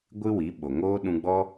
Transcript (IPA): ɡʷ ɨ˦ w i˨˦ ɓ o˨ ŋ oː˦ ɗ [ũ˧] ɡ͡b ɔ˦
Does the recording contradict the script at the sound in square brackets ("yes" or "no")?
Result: no